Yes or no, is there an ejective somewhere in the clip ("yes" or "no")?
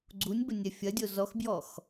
no